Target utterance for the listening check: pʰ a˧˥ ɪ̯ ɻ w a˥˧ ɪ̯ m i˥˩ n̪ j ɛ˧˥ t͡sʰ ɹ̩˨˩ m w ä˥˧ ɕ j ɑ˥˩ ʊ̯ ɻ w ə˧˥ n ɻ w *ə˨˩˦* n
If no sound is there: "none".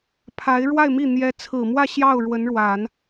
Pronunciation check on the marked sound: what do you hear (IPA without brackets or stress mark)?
a˨˩˦